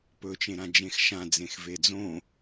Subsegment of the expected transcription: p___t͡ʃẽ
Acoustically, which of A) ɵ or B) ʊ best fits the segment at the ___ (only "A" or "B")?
A